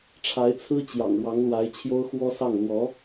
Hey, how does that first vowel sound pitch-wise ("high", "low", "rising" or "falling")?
rising